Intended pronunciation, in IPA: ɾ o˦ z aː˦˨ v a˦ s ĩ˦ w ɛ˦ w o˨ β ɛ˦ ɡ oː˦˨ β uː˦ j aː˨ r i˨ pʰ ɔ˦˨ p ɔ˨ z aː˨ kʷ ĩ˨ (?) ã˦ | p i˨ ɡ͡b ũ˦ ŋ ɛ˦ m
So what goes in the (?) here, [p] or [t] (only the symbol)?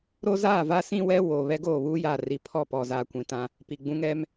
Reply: t